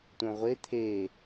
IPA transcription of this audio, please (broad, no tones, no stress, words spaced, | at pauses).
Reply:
tʷœ̃ʁʷe t̪ʰe